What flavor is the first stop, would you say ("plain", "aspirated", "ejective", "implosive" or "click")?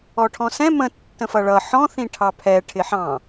aspirated